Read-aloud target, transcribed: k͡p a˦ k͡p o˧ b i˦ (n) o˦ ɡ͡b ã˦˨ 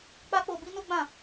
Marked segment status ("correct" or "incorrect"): correct